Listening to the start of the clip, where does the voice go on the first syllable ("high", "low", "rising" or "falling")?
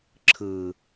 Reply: low